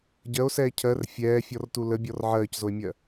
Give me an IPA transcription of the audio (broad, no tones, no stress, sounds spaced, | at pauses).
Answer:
ɟ ɜ o̯ s ɛː cʰ ɜ r fʲ ɛː fʲ ɔ r t u l ə bʲ ɔ r ʕ ɜː c z o e̯ mʲ ɜ